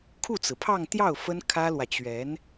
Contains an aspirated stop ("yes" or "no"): yes